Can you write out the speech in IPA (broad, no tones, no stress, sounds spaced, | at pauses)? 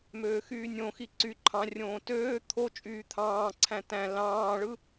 m øː x yː nʲ õ x i ǀ y ǃʰ ɑ̃ rʲ õː t øː t̪ʰ o t͡ʃʼ yː t̪ʰ ɑ̃ː ǀʰ æ̃ t æ̃ l ɑ̃ː ɭ ɯ